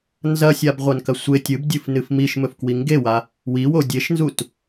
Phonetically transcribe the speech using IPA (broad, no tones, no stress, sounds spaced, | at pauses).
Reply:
n z ɐ sʲ a b ʁʷ ɐ n k ɐ sʷ e tʲ ɨ b dʲ ɨ f n ɨ f m i ʃ m ɵ f k w i ŋ ɡ e w a | w i w o dʲ e ʃ n z u t